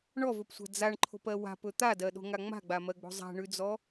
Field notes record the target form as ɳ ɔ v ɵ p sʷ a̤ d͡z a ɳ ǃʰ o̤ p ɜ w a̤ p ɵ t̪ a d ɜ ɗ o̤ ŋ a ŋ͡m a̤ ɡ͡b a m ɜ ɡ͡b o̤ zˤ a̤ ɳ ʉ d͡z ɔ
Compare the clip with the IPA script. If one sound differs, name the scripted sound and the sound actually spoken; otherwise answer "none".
none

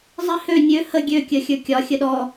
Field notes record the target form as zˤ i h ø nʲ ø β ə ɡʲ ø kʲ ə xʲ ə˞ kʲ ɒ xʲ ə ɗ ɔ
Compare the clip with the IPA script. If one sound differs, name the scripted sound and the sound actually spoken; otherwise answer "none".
β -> h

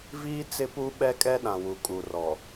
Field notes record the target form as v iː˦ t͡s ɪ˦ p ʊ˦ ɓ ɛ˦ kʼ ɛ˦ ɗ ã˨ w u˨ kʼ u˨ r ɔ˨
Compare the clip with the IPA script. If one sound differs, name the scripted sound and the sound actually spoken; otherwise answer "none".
ʊ˦ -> u˦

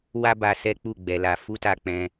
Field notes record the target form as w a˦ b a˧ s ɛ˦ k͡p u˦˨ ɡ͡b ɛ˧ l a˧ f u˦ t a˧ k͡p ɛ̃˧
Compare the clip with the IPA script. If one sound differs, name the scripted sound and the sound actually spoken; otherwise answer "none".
none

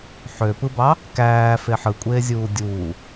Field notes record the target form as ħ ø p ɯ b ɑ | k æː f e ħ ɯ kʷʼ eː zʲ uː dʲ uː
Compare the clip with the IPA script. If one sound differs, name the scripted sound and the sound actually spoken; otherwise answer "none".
none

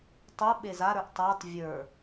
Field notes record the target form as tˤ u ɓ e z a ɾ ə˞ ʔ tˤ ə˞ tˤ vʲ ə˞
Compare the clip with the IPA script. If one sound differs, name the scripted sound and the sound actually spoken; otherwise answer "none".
none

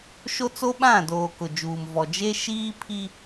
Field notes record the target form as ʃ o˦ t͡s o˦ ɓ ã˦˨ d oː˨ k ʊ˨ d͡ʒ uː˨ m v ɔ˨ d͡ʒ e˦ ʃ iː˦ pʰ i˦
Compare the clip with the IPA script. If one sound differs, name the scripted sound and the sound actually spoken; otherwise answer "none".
none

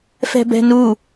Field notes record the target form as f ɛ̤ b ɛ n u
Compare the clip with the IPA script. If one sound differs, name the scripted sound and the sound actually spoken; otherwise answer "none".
ɛ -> ɛ̤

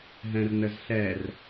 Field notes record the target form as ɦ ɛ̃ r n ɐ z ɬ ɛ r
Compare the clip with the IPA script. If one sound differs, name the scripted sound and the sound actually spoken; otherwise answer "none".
ɐ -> ə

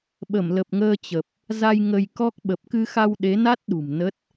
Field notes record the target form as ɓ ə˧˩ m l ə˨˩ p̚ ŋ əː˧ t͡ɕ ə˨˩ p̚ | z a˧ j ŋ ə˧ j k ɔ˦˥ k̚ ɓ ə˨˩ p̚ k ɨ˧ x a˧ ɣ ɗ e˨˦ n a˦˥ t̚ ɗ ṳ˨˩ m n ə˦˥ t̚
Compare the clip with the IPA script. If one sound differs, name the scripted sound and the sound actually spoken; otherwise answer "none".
ɣ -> w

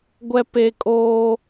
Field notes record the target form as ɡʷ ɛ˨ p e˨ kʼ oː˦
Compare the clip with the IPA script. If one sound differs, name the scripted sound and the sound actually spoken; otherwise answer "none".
none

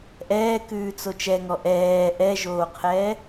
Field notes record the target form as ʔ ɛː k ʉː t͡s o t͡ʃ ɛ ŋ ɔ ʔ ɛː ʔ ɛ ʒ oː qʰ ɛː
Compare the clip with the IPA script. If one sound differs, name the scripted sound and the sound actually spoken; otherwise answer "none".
none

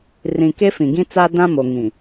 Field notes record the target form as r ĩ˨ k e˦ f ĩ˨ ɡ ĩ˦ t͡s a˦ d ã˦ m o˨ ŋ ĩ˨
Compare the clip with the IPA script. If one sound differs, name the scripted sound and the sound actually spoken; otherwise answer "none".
none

